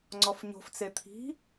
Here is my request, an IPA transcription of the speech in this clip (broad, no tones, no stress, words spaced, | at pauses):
ŋ͡ǀɔfɲo̤ft͡se t̪ʰi̤